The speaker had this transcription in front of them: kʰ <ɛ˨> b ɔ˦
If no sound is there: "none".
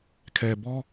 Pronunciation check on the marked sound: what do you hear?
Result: ɛ˨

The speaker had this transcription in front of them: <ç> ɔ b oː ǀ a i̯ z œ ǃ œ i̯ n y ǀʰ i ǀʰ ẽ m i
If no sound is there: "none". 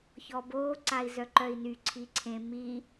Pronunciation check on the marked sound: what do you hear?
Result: ç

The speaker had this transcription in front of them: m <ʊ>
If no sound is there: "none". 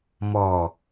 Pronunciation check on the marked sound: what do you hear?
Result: ɔ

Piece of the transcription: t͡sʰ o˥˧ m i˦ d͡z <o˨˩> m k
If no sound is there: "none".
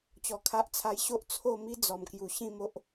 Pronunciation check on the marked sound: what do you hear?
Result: ɔ˨˩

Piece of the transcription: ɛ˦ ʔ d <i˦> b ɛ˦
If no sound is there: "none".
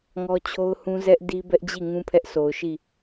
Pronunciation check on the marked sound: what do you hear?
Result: i˦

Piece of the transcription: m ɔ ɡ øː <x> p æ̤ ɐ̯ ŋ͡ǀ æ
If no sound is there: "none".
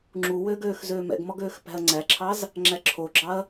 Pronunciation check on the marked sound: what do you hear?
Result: x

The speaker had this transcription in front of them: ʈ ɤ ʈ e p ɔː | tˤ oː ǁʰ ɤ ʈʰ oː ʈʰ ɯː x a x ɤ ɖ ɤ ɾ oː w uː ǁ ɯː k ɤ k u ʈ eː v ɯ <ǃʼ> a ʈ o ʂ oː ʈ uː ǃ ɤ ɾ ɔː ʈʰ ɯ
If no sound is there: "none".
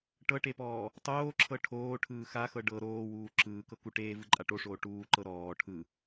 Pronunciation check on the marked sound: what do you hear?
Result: ǃʼ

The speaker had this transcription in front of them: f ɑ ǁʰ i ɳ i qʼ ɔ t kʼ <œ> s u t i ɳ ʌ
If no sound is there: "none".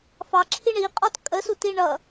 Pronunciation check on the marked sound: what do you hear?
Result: ə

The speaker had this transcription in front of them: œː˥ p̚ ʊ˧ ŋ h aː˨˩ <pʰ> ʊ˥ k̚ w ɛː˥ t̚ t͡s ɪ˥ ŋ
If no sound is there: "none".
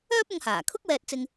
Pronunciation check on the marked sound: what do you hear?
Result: kʰ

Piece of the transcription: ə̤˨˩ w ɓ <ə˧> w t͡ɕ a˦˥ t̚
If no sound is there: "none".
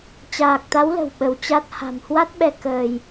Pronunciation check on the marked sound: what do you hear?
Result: ə˧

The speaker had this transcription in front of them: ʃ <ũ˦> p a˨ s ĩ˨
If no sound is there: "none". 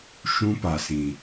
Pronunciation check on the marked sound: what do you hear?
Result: ũ˦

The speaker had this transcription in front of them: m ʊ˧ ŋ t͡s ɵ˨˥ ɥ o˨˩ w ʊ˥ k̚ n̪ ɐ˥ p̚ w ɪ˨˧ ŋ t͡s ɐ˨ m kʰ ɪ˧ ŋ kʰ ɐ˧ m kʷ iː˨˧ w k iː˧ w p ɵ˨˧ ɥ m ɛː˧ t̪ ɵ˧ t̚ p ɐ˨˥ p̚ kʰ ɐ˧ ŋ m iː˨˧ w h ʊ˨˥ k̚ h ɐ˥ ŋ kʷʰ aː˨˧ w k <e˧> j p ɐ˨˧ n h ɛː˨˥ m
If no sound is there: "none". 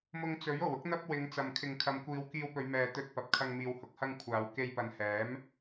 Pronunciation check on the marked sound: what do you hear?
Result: e˧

